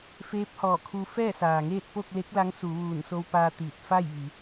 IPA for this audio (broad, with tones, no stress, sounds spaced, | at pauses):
f eː˧˥ p̚ h ɔː˧˩ kʰ u˧ f ɛː˥˨ s aː˩ ŋ eː˥˨ t̚ p o˥˨ k̚ l e˧˥ k̚ l a˧˥ ŋ s u˩˧ ʋ uː˧˩ n s o˧ w p aː˧ t̪ iː˧˩ t̚ f a˥˨ j ʋ i˩˧